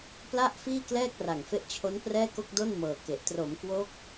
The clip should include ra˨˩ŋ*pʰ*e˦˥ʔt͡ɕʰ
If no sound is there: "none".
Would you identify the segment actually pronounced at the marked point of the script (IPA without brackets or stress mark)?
f